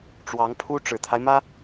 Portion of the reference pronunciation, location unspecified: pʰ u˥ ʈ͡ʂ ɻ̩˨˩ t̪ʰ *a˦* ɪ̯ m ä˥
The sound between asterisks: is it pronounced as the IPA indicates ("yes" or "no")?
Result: yes